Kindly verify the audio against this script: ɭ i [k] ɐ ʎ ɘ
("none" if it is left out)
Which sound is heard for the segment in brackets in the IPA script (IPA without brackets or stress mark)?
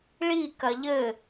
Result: k